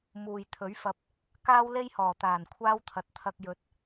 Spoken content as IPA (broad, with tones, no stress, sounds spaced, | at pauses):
m uː˨ j t̪ʰ ɵ˨˥ ɥ f ɐ˧ p̚ | k aː˥ w l e˥ j h ɔː˨˩ t̪ aː˨˩ n kʷʰ aː˥ w t̪ʰ ɐ˨˥ t̚ t̪ʰ ɐ˧ k̚ j ɵ˨ t̚